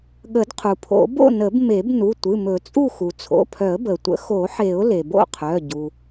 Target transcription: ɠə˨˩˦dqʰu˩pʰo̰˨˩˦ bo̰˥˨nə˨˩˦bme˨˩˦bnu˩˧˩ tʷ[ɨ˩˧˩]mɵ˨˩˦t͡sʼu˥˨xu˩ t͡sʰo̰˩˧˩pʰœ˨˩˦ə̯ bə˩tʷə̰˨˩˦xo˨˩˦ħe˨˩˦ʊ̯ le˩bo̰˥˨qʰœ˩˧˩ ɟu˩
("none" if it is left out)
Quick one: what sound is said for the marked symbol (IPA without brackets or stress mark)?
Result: ɨ˩˧˩